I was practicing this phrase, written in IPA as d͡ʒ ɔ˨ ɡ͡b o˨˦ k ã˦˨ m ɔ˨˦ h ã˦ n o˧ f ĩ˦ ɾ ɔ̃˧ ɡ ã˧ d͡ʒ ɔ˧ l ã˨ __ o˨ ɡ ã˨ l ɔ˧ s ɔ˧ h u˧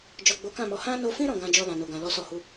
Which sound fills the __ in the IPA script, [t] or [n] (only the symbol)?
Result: n